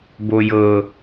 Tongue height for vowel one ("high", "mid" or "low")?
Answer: mid